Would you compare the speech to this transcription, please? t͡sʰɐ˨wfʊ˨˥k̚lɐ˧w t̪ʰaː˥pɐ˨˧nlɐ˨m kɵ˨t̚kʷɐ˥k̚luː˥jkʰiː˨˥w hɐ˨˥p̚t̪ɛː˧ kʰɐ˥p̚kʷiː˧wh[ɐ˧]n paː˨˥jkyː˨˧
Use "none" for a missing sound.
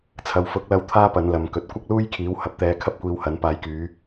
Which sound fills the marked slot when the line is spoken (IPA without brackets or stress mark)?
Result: ɐ˨˥